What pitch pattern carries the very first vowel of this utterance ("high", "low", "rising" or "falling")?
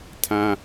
high